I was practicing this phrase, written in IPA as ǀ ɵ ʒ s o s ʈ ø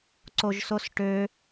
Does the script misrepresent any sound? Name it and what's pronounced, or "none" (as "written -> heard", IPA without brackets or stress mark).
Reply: ɵ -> o